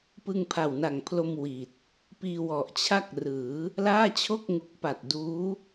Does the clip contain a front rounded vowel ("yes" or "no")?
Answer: no